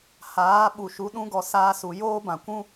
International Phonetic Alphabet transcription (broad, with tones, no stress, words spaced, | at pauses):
haː˨˦ ɓu˨ʃu˨˦ɗũ˦ɡɔ˧ saː˦su˧ joː˦bã˨kʷũ˦